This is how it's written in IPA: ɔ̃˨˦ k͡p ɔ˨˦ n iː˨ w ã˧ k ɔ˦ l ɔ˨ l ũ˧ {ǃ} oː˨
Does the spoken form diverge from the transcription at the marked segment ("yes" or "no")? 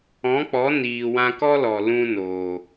yes